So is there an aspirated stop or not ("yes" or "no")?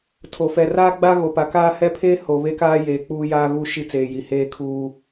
yes